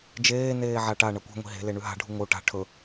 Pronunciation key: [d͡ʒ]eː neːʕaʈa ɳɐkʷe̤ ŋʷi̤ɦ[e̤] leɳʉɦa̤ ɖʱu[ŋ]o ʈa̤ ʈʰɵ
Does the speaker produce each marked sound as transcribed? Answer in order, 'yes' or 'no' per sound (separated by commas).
yes, yes, yes